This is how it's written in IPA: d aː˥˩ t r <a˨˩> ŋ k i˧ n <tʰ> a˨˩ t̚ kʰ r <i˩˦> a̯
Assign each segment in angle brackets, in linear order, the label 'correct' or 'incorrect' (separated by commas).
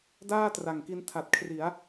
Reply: correct, correct, correct